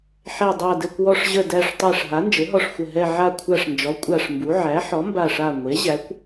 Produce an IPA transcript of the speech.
ħ ɛ˧˩ dˤ a˧˩ d ɘ˧˩ kʷ w ɔ˧˩ ʂ ʑ ə˧˩ d æ˧˩ ʂ tˤ æ˧˩ ʂ ɦ a˩˥ n d͡ʒ ɘ˩˥ ɦ ɔ˧˩ ʂ xʷ ə˧˩ ɦ ɛ˧˩ ʕ a˧˩ kʷʰ a˧˩ ʂ n d͡ʒ ɔ˩˥ kʷʼ a˧˩ ʂ m b u˩˥ ʕ æ˩˥ ħ ɔ˩˥ m b a˧˩ ʂ a˧˩ ŋʷ e˩˥ ʑ æ˩˥ kʷ

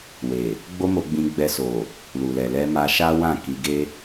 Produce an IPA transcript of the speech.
w e˨ | ɡ͡b o˦ m o˧ ɡ͡b ĩ˧ ɡ͡b ɛ˧ s o˨ | l u˨ l ɛ˨ l ɛ˧ m a˧ ʃ a˦ w ã˦˨ k i˧ ɡ e˦

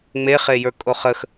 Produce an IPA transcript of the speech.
ŋ͡m e χ e j ə˞ kʼ o χ ə x

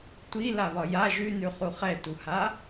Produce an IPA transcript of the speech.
tʷ i l a β ɒ j a ʒ ʉ n ʉ χ u χ ɛ t u h a

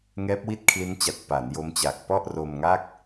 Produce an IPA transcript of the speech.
ŋ ɛː˦˥ p̚ w i˥˩ t̚ kʰ l i˦˥ n t͡ɕ a˨˩ t̚ p a˩˦ n j o˦˥ m t͡ɕ a˨˩ k̚ p ɔ˥˩ ʔ r o˧ m ŋ a˥˩ k̚

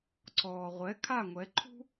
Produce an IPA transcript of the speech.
ǀ ɔː˩ ʁʷ ɛ˩˥ kʰ a˥˩ ŋʷ ɛ˩˥ ǃʰ ṳ˥

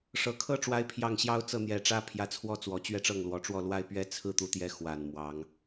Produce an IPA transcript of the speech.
ʂ ɤ˨˩ kʰ ɤ˥ ʈ͡ʂ w a˥ ɪ̯ pʰ j ɑ˥˩ ŋ ɕ j ɑ˥ ʊ̯ t͡s ɤ˥˩ n̪ j ɛ˨˩ ʈ͡ʂ ä˥ pʰ j ä˧˥ t͡sʰ w ɔ˥ t͡s w ɔ˨˩ t͡ɕ ɥ ɛ˥˧ ʈ͡ʂ ɤ˥˩ ŋ l w ɔ˨˩ ʈ͡ʂ w ɔ˥˩ l w a˥ ɪ̯ p ɥ ɛ˥ t͡sʰ ɹ̩˥ t̪ u˧˥ t̪ j ɛ˧˥ x w a˨˩ n m w ɑ˧˥ ŋ

